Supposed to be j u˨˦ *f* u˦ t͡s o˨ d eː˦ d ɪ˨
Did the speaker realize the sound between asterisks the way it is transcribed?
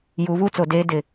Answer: no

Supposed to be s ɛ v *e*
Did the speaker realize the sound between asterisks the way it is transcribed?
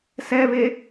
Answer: yes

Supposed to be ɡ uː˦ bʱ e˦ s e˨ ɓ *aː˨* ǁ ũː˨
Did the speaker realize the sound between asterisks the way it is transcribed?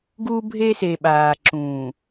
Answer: yes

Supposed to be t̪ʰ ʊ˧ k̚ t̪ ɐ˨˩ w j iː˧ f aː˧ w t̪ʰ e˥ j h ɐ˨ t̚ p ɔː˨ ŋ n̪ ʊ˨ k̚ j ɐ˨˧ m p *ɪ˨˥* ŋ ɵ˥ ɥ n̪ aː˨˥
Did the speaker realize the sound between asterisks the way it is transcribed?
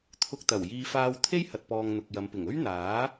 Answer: no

